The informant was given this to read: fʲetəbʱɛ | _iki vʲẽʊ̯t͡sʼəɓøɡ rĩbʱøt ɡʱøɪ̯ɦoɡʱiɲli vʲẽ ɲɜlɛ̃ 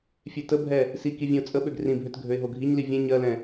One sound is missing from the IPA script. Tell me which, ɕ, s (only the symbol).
s